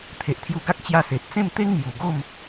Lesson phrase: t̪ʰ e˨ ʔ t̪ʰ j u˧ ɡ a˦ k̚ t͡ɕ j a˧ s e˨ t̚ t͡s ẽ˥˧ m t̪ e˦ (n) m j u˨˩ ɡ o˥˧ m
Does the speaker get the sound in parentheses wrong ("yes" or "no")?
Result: yes